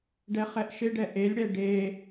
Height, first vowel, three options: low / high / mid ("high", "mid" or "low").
mid